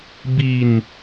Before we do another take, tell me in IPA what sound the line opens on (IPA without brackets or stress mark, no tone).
b